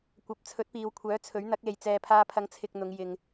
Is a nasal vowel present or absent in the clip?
absent